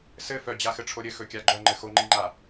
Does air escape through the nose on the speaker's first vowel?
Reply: no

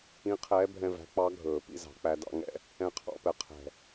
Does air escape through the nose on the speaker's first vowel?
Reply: yes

